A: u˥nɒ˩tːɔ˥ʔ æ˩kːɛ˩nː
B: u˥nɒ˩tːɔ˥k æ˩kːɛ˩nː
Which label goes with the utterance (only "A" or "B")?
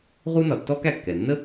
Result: B